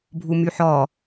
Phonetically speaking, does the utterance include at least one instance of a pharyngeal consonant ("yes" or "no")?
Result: yes